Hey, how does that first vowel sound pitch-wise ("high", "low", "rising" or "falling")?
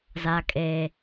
low